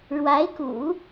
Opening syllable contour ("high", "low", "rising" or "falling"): rising